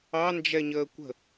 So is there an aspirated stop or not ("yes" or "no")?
no